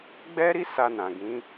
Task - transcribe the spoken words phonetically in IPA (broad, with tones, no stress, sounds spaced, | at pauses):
ɡ͡b ɛ˦ ɾ i˦ s a˧ n ã˨ ɡ ĩ˨˦